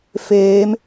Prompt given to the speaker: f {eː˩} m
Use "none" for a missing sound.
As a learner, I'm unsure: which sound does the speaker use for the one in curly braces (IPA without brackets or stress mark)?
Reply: eː˩˧